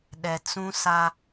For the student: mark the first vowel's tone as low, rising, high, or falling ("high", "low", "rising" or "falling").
low